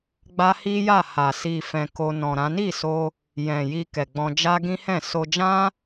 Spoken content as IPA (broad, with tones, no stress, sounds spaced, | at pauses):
ɡ͡b a˦ h i˦ j a˦˨ h a˨ s i˨ f ɛ̃˨ k o˧ n ɔ̃˨ ɾ ã˨˦ n i˦˨ s o˧ | j ɛ̃˨ j i˧ k ɛ˨ ɡ͡b ɔ̃˧ d͡ʒ a˦ ɡ ĩ˦ h ɛ̃˦˨ s o˧ d͡ʒ ã˦